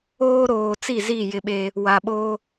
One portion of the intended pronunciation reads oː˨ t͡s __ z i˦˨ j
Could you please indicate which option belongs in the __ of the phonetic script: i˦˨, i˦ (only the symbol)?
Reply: i˦˨